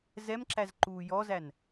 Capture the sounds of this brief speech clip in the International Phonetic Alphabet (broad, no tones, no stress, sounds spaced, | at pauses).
z ɛ m ǁ æ z ǃ uː j ɔ z æ n